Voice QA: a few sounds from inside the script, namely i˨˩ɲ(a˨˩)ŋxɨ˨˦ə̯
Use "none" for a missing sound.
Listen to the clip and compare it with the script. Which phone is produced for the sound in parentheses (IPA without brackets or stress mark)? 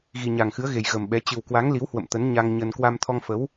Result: a˨˩